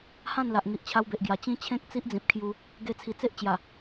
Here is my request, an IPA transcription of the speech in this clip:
h ã˥˧ n l a˨ ʔ ŋ i˨ ʔ t͡ɕʰ a˧ w b e˨ ʔ ɡ j a˨˩ t͡ɕ ĩ˦ t͡ɕʰ ẽ˦ k̚ t͡s i˦ ʔ d͡z ĩ˨ p̚ kʰ j u˧ | ɡ e˧ t͡sʰ i˨˩ t͡s e˦ ʔ t͡ɕ j a˨˩

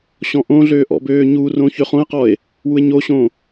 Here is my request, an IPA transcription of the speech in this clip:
ɕ ɔ̃ ʔ õ ɮ øː ʔ ɔ̰ b øː ɲ u r õ ç ø χ õ e̯ q ɔ e̯ | w u e̯ ɲ o ɕ õ

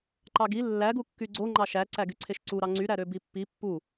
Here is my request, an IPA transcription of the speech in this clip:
ǃ ɑ ɡ i lː æ ɡ u kː y ɡ͡ǀ o ŋ͡ǃ ɑ ʃ æ ǀ æ ɡ y ǀʰ e ʃ ǀ u ɾ ɑ ŋ͡ǀ y ɾ æ ɾ ø b i pː i pː u

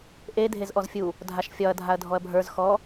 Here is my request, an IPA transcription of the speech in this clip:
ʔ e dʱ e z ʔ ɔ z fʲ u | dʱ a ʃ fʲ ɒ ɐ̯ dʱ a ɐ̯ dʱ ɔ ɐ̯ bʱ ə˞ z x ɔ

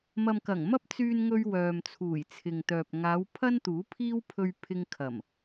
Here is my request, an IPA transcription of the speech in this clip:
m ɐ˨ m k ɐ˨˩ ŋ m ɐ˥ p̚ t͡s yː˧ n ŋ ɵ˧ ɥ w œː˨ m t͡sʰ uː˨˩ j t͡sʰ ɪ˨ ŋ t̪ œː˨ p̚ ŋ aː˨˧ w pʰ ɐ˥ n t̪ uː˨˥ pʰ iː˥ w pʰ ɵ˧ ɥ pʰ ɪ˧ ŋ kʰ ɐ˨˩ m

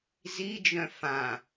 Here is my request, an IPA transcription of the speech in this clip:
z i d͡ʒ œ̃ f ã

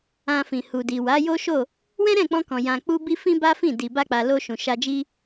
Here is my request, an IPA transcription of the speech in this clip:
ã˧ f ĩ˨ h u˨ d i˨ w a˨˦ j o˦ ʃ o˦˨ | w ɛ̃˦ ɾ ɛ̃˦˨ k͡p ɔ̃˧ k ɔ̃˨ j ã˨ k͡p u˧ b i˧ f ĩ˦ b a˦ f ĩ˦˨ d i˨ b a˧ k͡p a˨ l o˧ ʃ ũ˨ ʃ a˧ d͡ʒ i˦

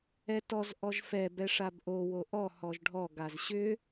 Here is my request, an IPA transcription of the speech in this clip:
ɛ t ɔ z ʔ ɔ ʒ f ɛ b ɛ ʂ a b ʔ o w o ʔ ɔ h ɔ ʒ ɖʱ ɔ ɡ a z ɕ ʏ

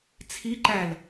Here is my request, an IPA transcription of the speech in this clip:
t͡sʰ i ǃ æ l

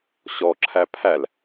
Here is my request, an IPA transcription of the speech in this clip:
ɕ ɔ ǁʰ æ pʰ æ l

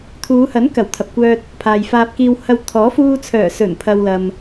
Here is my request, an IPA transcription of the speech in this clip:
t̪ʰ uː˨˧ h ɐ˨˥ n k ɐ˨˩ w t̪ʰ ɐ˨ p̚ kʷ œː˧ t̚ | pʰ aː˨ j f aː˧ p̚ k iː˧ w h ɐ˧ w t̪ʰ ɔː˨˥ f uː˧ t͡sʰ œː˨˩ s ɵ˨˩ n pʰ ɐ˨ w l ɐ˨ m

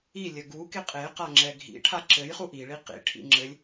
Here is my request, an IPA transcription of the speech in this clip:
i lʲ ə ɡ u k e qʼ e q a ŋ͡ǁ ɛ ɡʱ ḭ ʈʰ a ǁ ɘ j χ u ʔ i ɭ i q ḭ ʈʰ ḭ ŋ͡ǁ ɘ lʲ

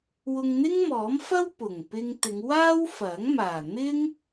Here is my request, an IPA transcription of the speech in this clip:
w ʊ˧ ŋ n̪ ɪ˥ ŋ m ɔː˨˥ m f ɐ˥ w p ʊ˨˩ ŋ p ɪ˧ ŋ t̪ ɪ˨˧ ŋ w aː˥ w f ɐ˨˥ ŋ m aː˨˩ n̪ ɪ˥ ŋ

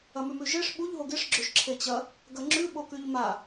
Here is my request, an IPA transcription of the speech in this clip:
ɐ m ʉ m ʉ ʒ e ʂ ɓ u ʎ ɦ o ɡ e ʂ ɡ͡ǁ ɵ ʒ ǁʰ e t͡ɕ ɐ | ɡ ɐ ŋ͡ǁ ʉ ɓ o k ʉ ʎ m a

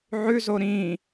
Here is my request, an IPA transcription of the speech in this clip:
ʕ ʉ z o ɾ ĩ

